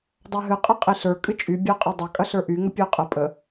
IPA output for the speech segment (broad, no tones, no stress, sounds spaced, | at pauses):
dˤ a ɦ ɨ qʼ ɐ qʼ i ɬ ə˞ kʼ ɨ t͡ʃʼ y bʲ a qʼ ɐ dˤ ɐ kʼ ɐ ɬ ə˞ ʔ y ŋ ə pʲ ə˞ qʼ ə pʼ ə